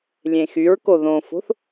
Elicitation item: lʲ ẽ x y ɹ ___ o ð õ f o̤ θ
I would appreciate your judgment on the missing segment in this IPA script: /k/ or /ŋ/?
k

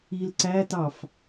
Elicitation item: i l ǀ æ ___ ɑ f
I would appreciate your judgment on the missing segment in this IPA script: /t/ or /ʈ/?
t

